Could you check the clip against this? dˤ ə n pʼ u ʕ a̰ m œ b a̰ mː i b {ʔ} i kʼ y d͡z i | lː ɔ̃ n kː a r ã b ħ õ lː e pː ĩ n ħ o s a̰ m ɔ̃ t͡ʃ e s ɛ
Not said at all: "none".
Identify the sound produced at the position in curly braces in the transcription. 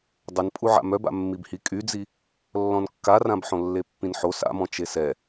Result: h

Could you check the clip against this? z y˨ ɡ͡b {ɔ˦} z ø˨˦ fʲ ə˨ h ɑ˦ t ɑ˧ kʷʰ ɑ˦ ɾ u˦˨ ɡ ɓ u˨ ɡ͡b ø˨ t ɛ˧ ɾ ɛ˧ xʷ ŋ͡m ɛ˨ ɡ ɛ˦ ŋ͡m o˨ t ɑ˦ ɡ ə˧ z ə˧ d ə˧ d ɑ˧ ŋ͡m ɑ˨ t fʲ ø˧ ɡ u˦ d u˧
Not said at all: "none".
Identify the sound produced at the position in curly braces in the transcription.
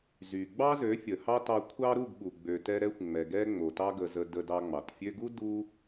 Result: ɑ˦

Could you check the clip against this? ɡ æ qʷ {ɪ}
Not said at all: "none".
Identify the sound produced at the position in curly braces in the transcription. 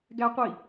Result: i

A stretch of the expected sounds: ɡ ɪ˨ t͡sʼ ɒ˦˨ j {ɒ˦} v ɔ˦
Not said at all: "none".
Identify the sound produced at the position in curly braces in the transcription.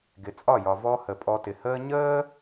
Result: ɒ˨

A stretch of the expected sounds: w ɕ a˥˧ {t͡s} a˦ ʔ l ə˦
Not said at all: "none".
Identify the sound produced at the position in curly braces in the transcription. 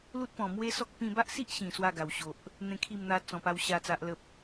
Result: t͡s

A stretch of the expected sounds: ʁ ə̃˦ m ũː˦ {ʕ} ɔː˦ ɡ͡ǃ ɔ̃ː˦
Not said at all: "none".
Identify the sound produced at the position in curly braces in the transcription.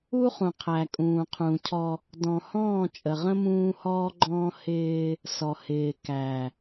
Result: h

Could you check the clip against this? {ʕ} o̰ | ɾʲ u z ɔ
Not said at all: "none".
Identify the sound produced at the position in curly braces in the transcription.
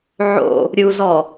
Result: ʕ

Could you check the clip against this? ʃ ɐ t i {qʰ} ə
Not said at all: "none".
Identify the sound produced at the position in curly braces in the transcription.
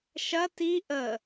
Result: ʔ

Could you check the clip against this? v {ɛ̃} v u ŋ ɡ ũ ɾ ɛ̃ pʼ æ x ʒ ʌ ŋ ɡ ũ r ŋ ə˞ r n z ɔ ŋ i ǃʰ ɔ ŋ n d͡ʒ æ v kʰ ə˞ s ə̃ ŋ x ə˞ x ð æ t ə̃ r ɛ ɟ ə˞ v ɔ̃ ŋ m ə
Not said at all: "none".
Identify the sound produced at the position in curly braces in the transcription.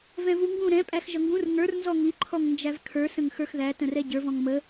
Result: ɛ̃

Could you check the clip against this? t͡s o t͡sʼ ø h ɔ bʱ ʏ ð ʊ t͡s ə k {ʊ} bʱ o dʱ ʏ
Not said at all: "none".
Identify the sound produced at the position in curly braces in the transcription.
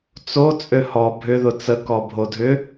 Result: ɔ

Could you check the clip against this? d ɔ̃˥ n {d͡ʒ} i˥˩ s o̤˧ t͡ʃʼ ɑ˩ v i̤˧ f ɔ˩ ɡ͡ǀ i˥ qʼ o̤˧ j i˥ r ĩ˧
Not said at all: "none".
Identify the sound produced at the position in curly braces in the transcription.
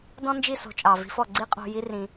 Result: d͡ʒ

